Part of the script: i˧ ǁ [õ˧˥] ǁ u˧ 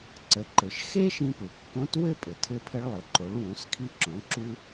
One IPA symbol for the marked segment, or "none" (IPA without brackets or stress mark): õ˩˧